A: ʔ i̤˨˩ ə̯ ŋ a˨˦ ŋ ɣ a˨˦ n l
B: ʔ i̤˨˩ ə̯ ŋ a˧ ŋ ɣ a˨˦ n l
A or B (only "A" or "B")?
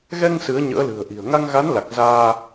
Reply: B